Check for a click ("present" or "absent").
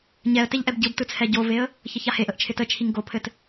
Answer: absent